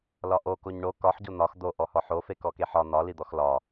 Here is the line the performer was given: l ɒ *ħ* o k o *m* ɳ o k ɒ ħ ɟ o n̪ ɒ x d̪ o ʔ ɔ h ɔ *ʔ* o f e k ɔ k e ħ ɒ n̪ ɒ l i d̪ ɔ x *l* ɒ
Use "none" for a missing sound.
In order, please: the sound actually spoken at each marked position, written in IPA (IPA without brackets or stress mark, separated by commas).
ʔ, ɲ, ħ, l